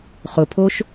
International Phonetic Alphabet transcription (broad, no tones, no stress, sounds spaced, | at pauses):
χ ʊ pʰ o ʃ